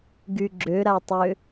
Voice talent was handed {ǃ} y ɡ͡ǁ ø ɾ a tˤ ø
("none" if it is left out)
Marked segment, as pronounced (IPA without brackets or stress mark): ɡ